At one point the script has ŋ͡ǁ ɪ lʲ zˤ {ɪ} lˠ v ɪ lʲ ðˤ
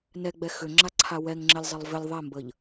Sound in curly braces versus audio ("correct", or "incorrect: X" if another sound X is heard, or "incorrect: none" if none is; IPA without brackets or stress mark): correct